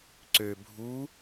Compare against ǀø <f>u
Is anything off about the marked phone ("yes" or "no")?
yes